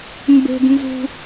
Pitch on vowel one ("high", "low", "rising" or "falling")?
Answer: low